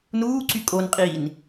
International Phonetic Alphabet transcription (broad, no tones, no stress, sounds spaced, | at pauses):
n uː ǀ y kʼ o n qʼ iː n